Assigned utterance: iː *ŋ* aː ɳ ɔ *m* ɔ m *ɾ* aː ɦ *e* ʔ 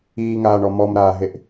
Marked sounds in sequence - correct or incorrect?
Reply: correct, correct, correct, correct

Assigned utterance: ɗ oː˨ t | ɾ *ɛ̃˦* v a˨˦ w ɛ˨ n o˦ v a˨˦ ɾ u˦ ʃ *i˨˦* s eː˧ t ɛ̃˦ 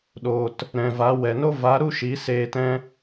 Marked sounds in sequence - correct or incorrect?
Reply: incorrect, correct

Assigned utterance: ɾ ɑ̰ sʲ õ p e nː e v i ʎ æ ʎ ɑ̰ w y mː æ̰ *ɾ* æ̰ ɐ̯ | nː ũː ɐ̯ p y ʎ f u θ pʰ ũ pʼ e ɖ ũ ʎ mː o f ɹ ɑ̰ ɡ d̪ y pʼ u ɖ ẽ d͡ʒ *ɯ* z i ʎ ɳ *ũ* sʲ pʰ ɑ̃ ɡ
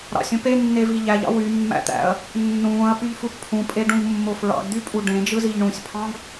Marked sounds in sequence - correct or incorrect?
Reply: incorrect, correct, correct

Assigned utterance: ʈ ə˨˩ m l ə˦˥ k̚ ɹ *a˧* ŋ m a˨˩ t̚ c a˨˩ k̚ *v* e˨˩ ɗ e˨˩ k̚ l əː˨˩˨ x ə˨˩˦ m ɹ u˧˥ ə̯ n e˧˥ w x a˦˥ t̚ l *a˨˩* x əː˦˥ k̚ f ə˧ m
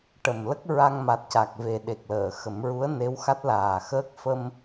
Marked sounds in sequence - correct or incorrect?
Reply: correct, correct, incorrect

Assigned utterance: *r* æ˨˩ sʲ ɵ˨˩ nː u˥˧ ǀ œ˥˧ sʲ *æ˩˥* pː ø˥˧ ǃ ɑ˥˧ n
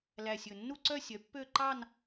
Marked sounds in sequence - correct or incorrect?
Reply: incorrect, incorrect

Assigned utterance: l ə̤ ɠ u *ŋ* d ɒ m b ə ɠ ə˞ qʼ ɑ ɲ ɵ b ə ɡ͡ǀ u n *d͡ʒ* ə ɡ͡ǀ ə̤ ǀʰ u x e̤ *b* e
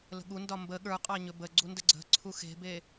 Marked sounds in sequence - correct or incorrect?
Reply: incorrect, incorrect, correct

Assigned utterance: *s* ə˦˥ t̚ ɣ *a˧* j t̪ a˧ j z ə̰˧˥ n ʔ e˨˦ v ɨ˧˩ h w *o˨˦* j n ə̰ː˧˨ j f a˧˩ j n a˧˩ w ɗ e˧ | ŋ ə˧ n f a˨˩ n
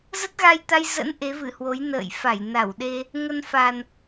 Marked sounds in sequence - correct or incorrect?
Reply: incorrect, correct, correct

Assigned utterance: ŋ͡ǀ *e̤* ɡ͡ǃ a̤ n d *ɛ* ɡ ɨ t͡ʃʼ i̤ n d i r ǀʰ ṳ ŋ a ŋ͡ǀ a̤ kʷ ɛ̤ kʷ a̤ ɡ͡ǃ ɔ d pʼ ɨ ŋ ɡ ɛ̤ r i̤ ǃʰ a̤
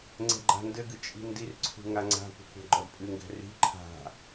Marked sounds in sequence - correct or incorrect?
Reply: incorrect, incorrect

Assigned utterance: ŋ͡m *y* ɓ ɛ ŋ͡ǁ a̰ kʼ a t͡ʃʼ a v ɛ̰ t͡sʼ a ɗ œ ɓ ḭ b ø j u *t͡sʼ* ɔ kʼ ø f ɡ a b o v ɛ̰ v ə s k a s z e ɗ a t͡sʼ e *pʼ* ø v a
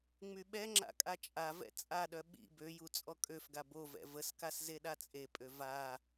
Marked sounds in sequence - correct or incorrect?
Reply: correct, correct, correct

